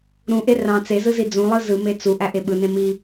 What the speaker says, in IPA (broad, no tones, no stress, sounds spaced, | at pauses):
ɾ ũ ʔ e r ɑ̃ t͡s e z ɯ z i d͡z ũ lˠ ɯ z ɯ m e t͡s u ʔ æ ʔ e ɓ ɯ n ẽ m i